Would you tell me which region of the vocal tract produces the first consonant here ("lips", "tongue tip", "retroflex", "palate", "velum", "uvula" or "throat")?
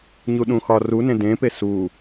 palate